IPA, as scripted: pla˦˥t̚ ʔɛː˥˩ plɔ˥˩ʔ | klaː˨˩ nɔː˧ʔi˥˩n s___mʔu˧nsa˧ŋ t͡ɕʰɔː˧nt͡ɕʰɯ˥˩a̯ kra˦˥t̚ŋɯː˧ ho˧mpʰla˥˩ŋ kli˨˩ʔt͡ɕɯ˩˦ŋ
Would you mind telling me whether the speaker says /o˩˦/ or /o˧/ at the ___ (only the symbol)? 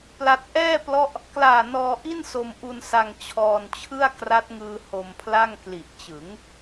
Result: o˧